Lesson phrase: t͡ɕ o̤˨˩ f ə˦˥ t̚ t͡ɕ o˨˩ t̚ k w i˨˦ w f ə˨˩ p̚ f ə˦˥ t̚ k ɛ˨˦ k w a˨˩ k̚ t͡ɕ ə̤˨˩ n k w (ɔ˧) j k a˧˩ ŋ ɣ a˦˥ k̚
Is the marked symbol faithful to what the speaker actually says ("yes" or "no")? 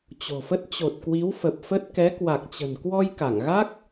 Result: yes